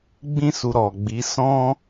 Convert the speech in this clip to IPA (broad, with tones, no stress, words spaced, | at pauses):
ɡ͡bĩ˦su˧ ɾɔ˨ɡ͡bi˨˦ sɔ̃˦